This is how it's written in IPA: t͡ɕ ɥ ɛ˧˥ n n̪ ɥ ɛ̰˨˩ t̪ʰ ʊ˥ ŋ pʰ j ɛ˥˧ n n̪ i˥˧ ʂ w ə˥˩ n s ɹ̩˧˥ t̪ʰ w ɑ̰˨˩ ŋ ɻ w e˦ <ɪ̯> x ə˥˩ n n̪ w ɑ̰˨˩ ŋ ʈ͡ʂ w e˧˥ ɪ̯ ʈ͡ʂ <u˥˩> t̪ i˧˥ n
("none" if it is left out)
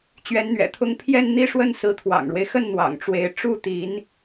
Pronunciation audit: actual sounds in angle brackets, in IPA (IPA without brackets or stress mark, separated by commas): ɪ̯, u˥˩